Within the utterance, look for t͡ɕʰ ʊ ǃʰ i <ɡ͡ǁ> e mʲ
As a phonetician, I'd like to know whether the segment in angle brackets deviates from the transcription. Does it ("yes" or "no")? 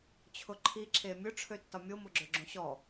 yes